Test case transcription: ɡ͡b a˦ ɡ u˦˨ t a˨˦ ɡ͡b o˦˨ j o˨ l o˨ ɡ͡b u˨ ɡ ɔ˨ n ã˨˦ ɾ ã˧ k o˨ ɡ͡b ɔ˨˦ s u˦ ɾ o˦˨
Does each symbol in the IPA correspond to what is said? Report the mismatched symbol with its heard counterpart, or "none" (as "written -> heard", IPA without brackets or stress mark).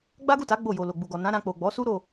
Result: k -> k͡p